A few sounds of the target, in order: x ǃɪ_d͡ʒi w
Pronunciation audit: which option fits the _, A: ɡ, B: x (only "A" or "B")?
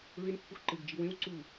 A